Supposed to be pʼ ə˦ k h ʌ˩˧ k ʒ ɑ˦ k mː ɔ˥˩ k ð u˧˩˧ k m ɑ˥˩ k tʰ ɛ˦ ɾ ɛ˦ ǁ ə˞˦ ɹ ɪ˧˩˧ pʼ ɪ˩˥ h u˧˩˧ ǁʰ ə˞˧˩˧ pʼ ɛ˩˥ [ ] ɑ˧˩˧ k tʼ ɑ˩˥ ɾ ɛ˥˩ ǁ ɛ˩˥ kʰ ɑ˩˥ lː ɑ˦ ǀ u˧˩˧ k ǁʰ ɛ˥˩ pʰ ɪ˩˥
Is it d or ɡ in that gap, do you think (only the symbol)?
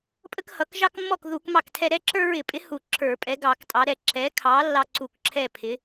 ɡ